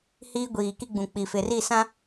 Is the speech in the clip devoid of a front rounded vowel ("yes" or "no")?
yes